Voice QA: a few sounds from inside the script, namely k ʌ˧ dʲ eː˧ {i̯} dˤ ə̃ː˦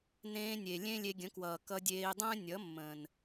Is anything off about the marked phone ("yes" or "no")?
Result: no